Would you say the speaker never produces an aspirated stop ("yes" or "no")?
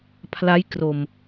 no